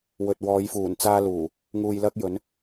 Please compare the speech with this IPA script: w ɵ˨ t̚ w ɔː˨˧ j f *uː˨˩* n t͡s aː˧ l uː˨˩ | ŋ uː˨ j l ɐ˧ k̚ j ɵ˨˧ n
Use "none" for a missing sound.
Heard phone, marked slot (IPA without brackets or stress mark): uː˨˩